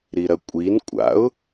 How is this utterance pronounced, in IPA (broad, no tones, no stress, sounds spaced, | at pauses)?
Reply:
ɾ i ɾ ɐ kʷʼ i n kʷʼ a̰ ʊ̯